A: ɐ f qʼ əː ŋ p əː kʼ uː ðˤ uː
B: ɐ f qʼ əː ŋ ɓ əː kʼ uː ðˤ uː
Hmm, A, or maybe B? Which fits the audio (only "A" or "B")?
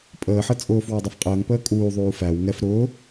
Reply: A